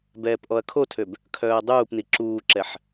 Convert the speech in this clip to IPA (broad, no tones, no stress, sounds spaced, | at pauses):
b ɛː p ʔ ɔ ɐ̯ kʰ o tʰ ø b | kʰ œː ɐ̯ dˤ uː p n i ǁ uː ǁ ɛ ħ